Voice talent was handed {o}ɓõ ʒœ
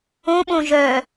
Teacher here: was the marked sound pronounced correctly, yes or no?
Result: no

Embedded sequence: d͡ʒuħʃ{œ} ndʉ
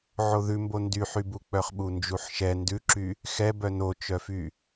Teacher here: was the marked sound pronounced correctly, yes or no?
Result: no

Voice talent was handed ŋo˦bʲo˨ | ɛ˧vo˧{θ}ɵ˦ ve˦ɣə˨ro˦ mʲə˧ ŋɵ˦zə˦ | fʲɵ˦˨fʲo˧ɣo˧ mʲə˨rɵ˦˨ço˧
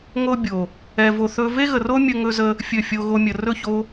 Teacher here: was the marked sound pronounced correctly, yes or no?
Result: yes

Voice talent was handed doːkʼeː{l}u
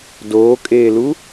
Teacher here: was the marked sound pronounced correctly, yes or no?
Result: yes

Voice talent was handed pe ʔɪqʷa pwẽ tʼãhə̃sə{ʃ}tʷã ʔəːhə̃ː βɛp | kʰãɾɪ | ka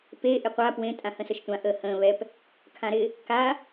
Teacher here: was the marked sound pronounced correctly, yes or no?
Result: yes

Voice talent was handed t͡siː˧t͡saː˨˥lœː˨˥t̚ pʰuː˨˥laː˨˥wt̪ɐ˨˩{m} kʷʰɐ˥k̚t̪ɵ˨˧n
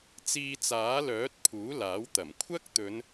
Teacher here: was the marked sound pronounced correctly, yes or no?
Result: yes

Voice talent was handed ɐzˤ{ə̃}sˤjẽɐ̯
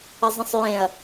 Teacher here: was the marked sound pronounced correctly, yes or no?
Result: yes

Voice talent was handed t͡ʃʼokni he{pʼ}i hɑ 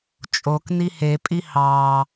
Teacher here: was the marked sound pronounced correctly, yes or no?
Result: yes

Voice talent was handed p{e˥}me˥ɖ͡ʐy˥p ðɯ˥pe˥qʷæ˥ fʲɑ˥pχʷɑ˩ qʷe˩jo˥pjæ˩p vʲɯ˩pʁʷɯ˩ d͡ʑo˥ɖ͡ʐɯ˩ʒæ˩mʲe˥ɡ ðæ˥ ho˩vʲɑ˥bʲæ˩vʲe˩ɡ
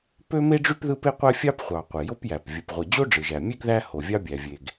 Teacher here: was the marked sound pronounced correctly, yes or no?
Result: no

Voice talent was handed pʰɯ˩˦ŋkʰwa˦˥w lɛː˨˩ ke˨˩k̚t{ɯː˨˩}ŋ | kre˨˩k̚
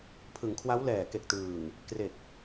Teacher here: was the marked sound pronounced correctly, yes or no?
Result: yes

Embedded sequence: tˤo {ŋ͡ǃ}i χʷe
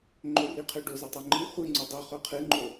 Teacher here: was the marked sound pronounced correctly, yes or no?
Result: yes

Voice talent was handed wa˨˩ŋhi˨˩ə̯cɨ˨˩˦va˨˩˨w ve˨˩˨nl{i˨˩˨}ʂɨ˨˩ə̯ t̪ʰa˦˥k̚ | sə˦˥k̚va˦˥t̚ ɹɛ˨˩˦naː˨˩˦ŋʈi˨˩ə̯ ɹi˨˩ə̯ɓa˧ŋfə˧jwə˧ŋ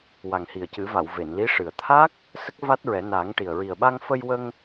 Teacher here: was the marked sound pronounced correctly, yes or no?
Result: no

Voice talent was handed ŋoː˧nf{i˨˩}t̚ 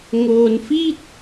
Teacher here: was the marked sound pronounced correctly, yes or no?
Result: no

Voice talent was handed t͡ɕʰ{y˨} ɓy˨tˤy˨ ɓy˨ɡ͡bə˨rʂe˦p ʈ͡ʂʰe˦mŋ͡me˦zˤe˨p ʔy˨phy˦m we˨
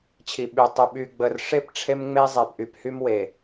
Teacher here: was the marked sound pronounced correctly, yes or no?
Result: no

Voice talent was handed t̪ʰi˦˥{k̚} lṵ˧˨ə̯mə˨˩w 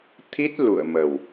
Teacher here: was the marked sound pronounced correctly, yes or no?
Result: no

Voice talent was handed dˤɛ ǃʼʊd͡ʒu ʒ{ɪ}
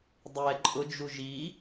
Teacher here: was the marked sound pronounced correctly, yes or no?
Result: no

